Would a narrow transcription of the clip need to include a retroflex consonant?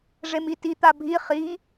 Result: yes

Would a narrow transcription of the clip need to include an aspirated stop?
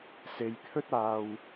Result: yes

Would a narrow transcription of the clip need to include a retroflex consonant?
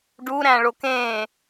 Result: yes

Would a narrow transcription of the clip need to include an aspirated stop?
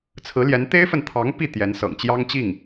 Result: yes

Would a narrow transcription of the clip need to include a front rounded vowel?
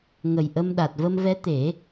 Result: no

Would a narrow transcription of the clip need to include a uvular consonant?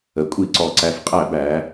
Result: yes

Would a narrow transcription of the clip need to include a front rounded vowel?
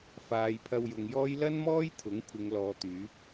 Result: yes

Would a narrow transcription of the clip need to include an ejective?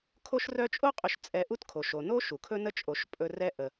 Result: yes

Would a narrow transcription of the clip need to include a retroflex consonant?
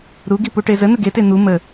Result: yes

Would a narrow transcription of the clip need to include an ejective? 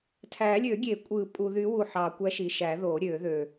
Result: yes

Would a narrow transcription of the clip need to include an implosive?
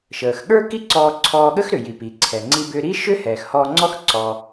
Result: yes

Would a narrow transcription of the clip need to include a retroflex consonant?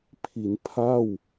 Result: no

